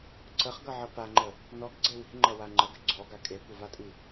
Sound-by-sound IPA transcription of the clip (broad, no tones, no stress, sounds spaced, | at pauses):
ǀ ə χ ɡ ʌ ʕ ʌ p a ŋ͡ǃ ə | n ɔ ɡ ɡ͡ǀ e w i̤ ŋ͡ǃ ʌ w a ŋ͡ǃ ə ɡ ə ɡ͡ǀ ɔ ɡ a kʼ e kʷ ʌ v a tʼ i